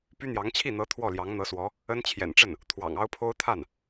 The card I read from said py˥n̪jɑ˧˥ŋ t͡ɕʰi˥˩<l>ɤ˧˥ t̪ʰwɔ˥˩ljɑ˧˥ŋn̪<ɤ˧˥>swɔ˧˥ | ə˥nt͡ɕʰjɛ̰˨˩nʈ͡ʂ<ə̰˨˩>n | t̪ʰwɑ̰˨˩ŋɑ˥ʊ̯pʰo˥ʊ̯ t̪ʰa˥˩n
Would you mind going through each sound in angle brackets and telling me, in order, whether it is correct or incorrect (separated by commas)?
incorrect, correct, incorrect